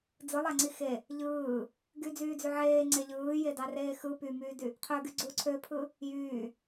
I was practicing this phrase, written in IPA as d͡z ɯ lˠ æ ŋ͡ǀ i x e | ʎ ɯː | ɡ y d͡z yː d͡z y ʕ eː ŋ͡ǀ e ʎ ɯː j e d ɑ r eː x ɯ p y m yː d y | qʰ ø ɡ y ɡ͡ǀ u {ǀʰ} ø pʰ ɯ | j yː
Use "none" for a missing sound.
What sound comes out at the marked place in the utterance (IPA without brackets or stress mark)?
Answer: ǀʰ